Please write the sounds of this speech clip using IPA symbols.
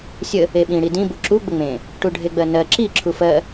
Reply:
sʲə | eɓĩ ɽidĩ buǁu ɡ͡bəŋ͡mẽ | ʈuɖʱeɡ͡bɜnɜ ǁi ǁʰufɜ

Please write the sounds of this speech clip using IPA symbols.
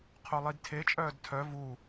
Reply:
qʰolˠidtʰe t͡ʃʼœːdtʰœ vu

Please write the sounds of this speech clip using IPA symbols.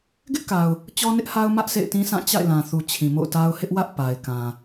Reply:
ɡɪ˦ʔka˨ʊ̯ | t͡ɕɔ˦nɪ˦ʔha˦ʊ̯ mä˦ʔ sʰḛ˦˨ɪ̯tĩ˦sã˦˨ t͡ɕa̰˦˨ɪ̯lã˨θu˨ t͡ɕʰĩ˨mo̰˦˨ʊ̯ta˦ʊ̯ hɪ˦ʔwä˦ʔ pa˨ɪ̯ kã˨

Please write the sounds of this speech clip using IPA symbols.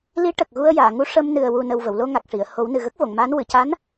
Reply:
li˧˥ ʈə˨˩k̚ɣu˧ə̯jaː˨˩˨ŋu˧˥ ʂə˧m nɨ˨˩ə̯wu˨˩nə˨˩w və˨˩˨wlo˧ŋa˨˩k̚ʂi˨˩˨ə̯ ho˨˩˦wnɨ˨˩ ɣə˦˥k̚vo˨˩˨ŋmaː˧˥n wɨ˨˩˨ca˧˥n

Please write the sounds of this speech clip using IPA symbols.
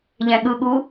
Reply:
ʎɛ̃ɠɯɠu

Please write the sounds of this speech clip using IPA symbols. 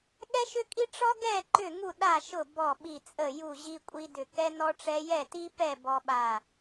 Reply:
ɠɛ˥ʃʏ˥kʼi˥ ʈ͡ʂɔ˥ ɡɛ˥˨ ǃʏ˥˨ŋu˥˨ ɗa˥˨ʃʊ˥˨ bɔ˥˨ɓi˥˨t͡sʼə˥˨ ju˥˨ʑi˥kʷʼi˥dʏ˥˨ kɛ˥ nɔ˥ʈ͡ʂɛ˥ jɛ˥˨ti˥pɛ˥˨ bɔ˥ɓa˥˨

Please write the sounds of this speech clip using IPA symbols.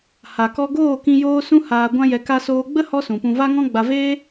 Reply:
ha˨kɔ˧ɡoː˦˨kĩ˧ joː˦sũ˦ haː˧ ɡʷã˦jɛ˧ ka˧soː˧ ɡ͡bə˦ hɔ˦sũ˨pũ˧ va˦ŋɔ̃˦ɡ͡ba˧ veː˦

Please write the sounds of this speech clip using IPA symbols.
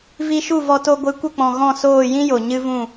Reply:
vi˧ʃu˦˨ vɔ˧ to˧ɡʷɨ˨˦kʷə˦˨k͡pɔ̃˨ ɣɔ̃˦˨soː˦˨ jĩ˦jo˨ ɲɨ˦vũ˦˨

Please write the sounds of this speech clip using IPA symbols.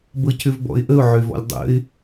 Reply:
bɤcʏvbɔ̰ɪ̯ʔəʊ̯ ʕøvɔ̰lʲdˤə̰ɪ̯

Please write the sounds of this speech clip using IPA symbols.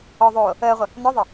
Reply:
ɔ ðˤoː | əːʁʷə | nɔðˤə

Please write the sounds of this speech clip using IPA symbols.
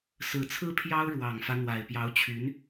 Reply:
sɹ̩˨˩t͡sʰɹ̩˥ pʰjɑ˥ʊ̯ ɻwɑ˨˩ŋfä˦ n̪wa˨˩ɪ̯pjɑ˧˥ʊ̯t͡ɕʰy˧˥n

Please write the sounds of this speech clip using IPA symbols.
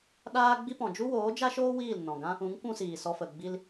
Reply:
ɗaː˦ɡ͡bi˦pɔ̃˨ d͡ʒu˦woː˨˦d͡ʒa˦ʃoː˦ wiː˦˨lnɔ̃˨ɡã˦ | ũ˨˦ŋ kʷũ˦siː˨sɔ˧fə˨ ɡ͡bi˧l

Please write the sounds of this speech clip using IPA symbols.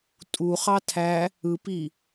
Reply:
tʼuχɑ tʰæ | ɯpi

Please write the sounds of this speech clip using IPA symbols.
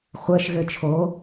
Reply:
χʷəːʃ ɣɘt͡ʃʰo

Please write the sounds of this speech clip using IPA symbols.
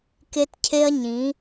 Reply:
ke˧tcʰe˧ɐ̯ ɲĩ˨˦

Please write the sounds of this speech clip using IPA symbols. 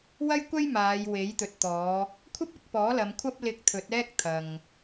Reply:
wɐ˥jkʷɐ˥j maː˨˧jwe˨˥jt̪ɵ˨t̚t̪ɔː˨˧ | kʷʰɐ˥p̚ɪ˨˥k̚ pɔː˨˥ lɐ˨˧mkʷʰɐ˥p̚ lɪ˧k̚t̪ʰɵ˨˥t̚ɛː˥k̚ t̪ʰɐ˨ŋ

